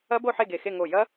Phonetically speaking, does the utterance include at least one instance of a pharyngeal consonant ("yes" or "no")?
yes